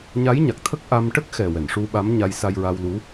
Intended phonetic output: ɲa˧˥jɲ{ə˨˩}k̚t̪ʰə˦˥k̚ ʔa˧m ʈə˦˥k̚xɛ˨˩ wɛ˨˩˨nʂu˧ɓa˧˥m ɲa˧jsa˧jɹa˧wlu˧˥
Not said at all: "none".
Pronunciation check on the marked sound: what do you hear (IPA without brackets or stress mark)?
a˨˩